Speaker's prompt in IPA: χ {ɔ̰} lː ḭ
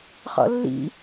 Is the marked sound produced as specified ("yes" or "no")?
yes